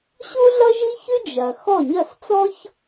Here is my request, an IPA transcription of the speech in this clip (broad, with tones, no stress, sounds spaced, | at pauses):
ɕ u˥ ɮ ʌ˥ ʒ i˥ ç ʉ˥ d͡ʒ ɐ˩ x ɔ˥˩ ɲ ɐ˥˩ s t͡s ɔ˥ ç